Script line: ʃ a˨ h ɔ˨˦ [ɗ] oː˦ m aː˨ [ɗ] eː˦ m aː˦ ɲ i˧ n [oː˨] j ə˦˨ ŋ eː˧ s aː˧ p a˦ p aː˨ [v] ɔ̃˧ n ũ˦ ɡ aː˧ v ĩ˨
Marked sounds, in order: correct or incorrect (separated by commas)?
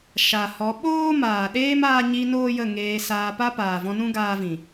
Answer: incorrect, correct, incorrect, correct